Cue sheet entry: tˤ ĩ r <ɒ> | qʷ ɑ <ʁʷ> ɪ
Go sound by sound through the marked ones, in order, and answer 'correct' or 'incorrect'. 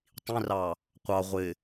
incorrect, correct

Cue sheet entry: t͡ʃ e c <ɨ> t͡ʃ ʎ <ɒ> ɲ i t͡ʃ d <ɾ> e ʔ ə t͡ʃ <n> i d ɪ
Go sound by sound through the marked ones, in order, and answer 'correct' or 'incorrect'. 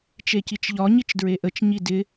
incorrect, correct, incorrect, incorrect

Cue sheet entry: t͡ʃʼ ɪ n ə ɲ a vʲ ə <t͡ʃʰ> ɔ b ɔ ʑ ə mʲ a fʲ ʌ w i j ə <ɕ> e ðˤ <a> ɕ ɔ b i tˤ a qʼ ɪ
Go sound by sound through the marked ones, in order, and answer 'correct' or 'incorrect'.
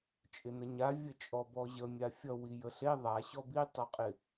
incorrect, incorrect, correct

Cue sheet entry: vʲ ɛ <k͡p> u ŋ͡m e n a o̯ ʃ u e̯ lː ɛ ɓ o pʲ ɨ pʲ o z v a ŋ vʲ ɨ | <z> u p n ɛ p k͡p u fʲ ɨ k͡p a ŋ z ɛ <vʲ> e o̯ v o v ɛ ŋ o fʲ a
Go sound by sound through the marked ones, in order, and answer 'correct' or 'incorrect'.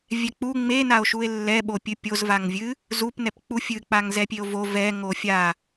correct, correct, incorrect

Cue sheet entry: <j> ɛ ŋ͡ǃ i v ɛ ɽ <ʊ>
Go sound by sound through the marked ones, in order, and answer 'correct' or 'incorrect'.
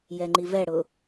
correct, correct

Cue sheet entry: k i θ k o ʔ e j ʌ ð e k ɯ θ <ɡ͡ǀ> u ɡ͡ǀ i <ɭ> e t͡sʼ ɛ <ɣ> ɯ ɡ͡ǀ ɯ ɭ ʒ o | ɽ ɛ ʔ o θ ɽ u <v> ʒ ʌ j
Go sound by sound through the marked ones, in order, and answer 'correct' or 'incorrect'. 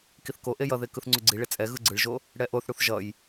incorrect, correct, correct, incorrect

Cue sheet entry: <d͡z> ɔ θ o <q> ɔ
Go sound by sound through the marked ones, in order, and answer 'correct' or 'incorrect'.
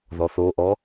incorrect, incorrect

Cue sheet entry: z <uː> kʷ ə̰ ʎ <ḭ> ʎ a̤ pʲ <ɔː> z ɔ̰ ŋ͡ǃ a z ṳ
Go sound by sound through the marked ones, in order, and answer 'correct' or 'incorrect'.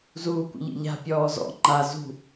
correct, correct, correct

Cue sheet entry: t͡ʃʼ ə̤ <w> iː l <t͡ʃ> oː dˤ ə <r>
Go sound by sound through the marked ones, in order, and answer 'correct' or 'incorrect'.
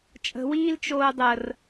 correct, correct, correct

